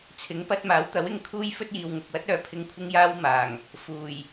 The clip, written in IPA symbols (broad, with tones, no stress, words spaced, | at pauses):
t͡sʰɪ˨˥ŋpɐ˧t̚maː˨˥w t̪ɐ˨˥wɪ˧ŋ kʰuː˥jfɵ˥t̚jiː˨wŋʊ˨k̚ wɐ˥t̚œː˨˧ pʰɪ˨˧ŋkʷʰɪ˧ŋjaː˧w maː˨˩ŋ | fuː˨˩j